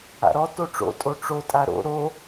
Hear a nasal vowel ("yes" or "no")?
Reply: no